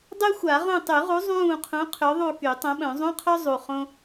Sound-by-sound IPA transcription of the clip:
dˤ y˥ xʷ a˨˩˦ ʁ ũ˦˨ tˤ y˨˩˦ ʁ u˨˥ zˤ ũː˦˨ qʰ ũ˨˥ qʰ ø˨˥ ðˤ u˦˨ k y˨˩˦ tˤ õ˨˥ ɓ œ̃˨˩˦ zˤ ũ˧˥˧ qʰ œ˥ zˤ u˨˩ χ õ˥

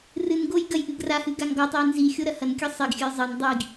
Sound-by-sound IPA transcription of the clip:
r ɨ n ɡ o j ɡ ɐ j ʔ ɨ ɡ r a h ɨ ɡ a ŋ ɡ ɔ tˤ ɘ j n z i xʲ o ɾ ɐ h ɐ n kʲ ɨ sˤ i ɡ xʲ ɘ j zˤ ɘ n dˤ i ɡ

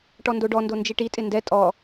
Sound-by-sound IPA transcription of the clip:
ʈ ɔ n d o ɖ ɔ n d o n d͡ʒ i ʈ i tʼ ɪ n d ɛ tʼ ɔ

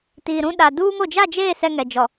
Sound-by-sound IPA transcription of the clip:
t iː˨ ɾ ũ˦ ɗ a˨ d uː˦ ŋ o˨ d͡ʒ a˦˨ d͡ʒ eː˦˨ s ɛ˦ ŋ ɛ˨ d͡ʒ ɔ˨

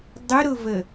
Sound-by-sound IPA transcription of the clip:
dˤ ʊ ɾ ʊ v ə

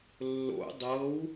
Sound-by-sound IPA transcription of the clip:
lː o̰ dˤ ɤ w

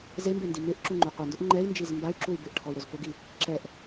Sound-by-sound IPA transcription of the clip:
z e m b e n d i m ɪ ʔ ǁ u ŋ͡ǃ u qʷ ɛ n d ʊ ʔ ŋ͡ǃ ɛ i̯ n d͡ʒ i z m b a y̯ ǁ u y̯ b ɪ ʔ ʈʰ ɔ y̯ ɾ ʊ z p ʊ ɡ i | ǁ ɛ ʔ

